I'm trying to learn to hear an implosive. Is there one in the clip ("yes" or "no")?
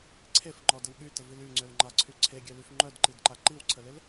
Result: yes